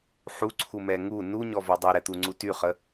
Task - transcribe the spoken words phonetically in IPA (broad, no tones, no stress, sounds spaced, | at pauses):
ħ u ǀʰ u m ɛ ŋ u n u ɲ ɔ v ɔ dˤ y ɾ ɛ t̪ u ŋ͡ǀ u t y χ ə